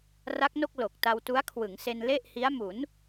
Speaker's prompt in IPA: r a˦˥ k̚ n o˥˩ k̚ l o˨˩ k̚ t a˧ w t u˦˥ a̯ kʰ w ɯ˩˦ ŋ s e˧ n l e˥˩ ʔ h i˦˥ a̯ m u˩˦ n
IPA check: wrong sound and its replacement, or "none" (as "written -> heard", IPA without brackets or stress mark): none